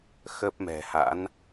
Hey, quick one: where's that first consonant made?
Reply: velum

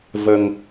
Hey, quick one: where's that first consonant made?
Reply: lips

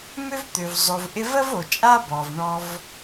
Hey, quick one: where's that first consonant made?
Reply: lips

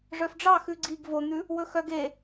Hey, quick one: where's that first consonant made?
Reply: retroflex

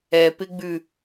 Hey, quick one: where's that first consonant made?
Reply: lips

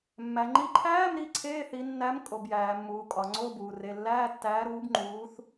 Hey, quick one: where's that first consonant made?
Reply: lips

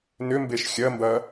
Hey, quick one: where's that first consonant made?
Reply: tongue tip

